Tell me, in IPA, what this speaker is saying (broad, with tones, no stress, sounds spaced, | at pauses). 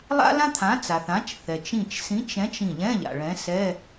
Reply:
lˠ a̰˥ l ã˥ t̪ʰ ã˨˥ t͡s a˩ θ ã˨˥ t͡ʃ θ ɛ˩ t͡ʃ ĩ˧˩ t͡ʃ s ĩ˨˥ t͡ʃ ɛ̃˨˥ t͡ʃ ĩ˧˩ ʎ ɛ̃˧˥˧ ʎ a̰˩ ɭ ɛ̃˨˥ s ɛ˧˥˧